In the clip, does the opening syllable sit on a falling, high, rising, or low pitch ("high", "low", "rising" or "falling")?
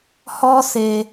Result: high